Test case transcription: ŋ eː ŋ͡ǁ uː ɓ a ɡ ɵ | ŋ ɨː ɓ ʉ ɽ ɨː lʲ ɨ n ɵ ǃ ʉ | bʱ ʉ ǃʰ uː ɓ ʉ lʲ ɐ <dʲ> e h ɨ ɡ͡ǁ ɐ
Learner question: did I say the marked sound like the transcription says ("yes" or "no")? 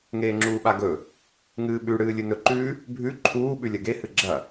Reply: no